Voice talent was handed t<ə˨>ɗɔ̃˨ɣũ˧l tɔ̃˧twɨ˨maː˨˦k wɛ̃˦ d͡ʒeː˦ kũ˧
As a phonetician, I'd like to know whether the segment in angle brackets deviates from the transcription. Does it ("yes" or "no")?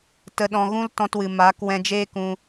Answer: no